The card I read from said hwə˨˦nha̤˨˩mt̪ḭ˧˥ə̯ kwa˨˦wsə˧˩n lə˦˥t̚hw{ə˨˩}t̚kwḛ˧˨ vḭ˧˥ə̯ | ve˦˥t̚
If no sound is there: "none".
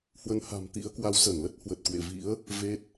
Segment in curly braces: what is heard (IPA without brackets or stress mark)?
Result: ə˨˩